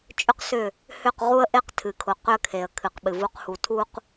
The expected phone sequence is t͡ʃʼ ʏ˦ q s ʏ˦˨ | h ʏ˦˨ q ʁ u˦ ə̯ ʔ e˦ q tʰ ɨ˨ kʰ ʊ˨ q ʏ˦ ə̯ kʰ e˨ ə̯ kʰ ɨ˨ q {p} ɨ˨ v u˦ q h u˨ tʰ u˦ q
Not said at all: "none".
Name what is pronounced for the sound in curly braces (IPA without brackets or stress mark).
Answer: ɓ